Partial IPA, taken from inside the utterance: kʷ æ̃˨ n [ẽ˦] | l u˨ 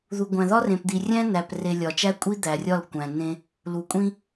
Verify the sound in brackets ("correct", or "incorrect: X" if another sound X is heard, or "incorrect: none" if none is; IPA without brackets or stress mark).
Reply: correct